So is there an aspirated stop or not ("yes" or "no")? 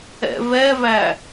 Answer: no